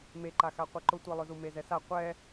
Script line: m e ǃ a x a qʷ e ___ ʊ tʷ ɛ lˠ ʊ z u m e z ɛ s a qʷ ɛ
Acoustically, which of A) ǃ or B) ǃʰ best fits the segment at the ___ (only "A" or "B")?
A